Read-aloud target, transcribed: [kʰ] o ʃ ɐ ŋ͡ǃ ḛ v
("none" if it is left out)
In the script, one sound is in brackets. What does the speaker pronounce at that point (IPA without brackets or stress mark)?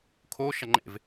kʰ